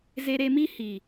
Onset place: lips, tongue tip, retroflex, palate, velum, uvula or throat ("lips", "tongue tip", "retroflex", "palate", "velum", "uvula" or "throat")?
tongue tip